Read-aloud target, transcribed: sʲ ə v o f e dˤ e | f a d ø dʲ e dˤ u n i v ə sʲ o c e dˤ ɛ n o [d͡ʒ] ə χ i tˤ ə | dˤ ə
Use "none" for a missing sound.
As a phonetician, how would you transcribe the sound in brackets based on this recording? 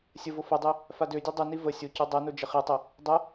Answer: d͡ʒ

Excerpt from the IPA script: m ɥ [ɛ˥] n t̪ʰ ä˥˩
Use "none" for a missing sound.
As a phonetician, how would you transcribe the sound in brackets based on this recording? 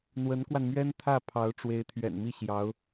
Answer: ɛ˥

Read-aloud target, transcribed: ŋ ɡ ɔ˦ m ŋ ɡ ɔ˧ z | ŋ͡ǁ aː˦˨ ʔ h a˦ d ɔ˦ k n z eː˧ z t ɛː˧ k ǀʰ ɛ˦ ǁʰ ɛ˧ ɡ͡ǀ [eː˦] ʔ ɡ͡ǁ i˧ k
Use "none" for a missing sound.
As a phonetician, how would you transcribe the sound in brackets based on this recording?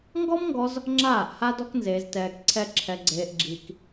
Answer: eː˧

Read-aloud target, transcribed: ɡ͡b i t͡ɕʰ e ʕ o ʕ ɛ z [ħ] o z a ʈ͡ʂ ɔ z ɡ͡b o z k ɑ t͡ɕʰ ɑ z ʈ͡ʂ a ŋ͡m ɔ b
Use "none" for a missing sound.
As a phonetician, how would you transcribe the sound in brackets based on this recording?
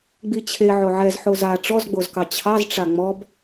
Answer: ħ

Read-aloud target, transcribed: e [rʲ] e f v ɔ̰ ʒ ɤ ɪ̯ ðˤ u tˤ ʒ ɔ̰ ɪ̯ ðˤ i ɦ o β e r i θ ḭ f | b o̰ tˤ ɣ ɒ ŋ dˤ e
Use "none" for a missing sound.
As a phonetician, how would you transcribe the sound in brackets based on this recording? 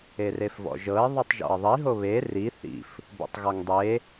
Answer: r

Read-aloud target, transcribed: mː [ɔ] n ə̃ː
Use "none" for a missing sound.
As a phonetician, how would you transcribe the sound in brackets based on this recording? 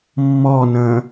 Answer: ɔ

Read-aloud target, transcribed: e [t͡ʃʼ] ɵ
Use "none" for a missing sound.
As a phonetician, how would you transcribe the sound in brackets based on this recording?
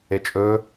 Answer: t͡ʃʼ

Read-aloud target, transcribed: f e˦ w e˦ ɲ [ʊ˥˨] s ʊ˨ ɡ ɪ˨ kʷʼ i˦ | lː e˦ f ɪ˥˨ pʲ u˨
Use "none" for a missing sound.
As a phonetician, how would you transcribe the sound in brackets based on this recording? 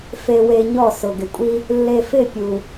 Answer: ɔ˥˨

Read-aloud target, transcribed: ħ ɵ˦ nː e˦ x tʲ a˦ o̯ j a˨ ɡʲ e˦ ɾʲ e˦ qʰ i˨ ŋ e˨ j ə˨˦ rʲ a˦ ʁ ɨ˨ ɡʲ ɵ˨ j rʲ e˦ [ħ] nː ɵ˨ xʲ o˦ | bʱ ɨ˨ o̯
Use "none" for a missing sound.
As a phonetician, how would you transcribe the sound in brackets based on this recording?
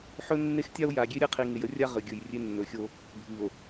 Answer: none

